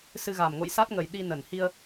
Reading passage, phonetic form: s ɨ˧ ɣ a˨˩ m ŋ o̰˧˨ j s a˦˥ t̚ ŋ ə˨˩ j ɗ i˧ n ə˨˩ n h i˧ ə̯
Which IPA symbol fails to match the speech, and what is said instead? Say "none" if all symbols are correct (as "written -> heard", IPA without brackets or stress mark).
none